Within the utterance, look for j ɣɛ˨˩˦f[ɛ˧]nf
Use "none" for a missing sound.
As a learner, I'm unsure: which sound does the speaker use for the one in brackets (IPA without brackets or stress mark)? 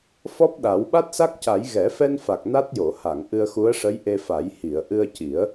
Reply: ɛ˧